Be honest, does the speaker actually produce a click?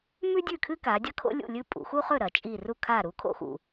no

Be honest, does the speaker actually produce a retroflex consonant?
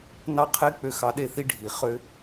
yes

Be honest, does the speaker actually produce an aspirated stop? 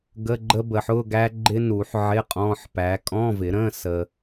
no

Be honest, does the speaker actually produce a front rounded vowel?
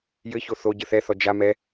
no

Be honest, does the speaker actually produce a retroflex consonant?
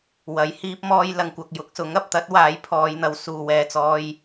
no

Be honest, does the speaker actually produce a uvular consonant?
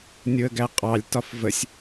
yes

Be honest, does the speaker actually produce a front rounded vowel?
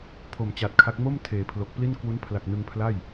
no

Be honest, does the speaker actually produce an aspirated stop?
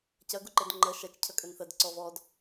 yes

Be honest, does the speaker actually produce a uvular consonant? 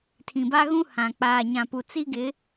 no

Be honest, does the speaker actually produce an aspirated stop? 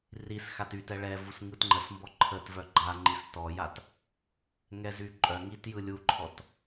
yes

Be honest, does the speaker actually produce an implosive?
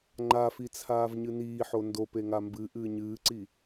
no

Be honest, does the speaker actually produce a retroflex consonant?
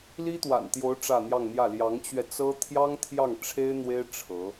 yes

